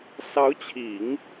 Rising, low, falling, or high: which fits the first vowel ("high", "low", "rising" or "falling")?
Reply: rising